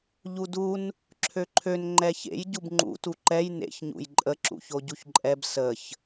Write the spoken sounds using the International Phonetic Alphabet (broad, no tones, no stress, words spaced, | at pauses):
ʎudun | ǁʰøǃʰøn ŋ͡ǃɛçḛj ɟubŋ͡ǃṵ tuǃɛj nḛç ɲṵjǃʼə ǁṵçoɟuçǃʼɛb səç